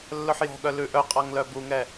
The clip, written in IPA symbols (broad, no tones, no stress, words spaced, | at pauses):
lːɵħjɔ̤ɠœ lʉʔœqʼɑŋlœ buŋɛ